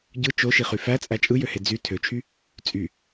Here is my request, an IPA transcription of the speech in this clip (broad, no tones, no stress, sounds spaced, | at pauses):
ɟ ɯ t͡ʃ o ʃ i χ y f æ t͡sʼ æ t͡ʃʼ ɯ j ø h e d͡z y tʰ ø t͡ʃʰ y | t͡sʼ y